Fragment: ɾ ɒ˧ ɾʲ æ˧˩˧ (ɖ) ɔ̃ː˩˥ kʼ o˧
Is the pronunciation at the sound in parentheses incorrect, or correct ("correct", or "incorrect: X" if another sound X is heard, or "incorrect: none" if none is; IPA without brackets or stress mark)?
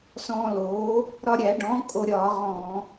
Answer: correct